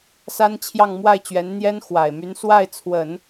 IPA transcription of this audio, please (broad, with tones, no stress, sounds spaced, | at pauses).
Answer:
s a˥ n t͡ɕʰ j ɑ˥˧ ŋ m w a˥˩ ɪ̯ t͡ɕ ɥ ɛ˧˥ n n̪ j ɛ˥ n x w a˨˩ ɪ̯ m y˧˥ n s w a˥˩ ɪ̯ t͡sʰ w ə˨˩˦ n